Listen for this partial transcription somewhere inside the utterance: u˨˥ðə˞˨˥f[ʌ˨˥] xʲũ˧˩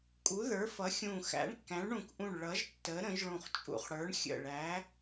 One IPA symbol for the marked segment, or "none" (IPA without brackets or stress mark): ʌ˨˥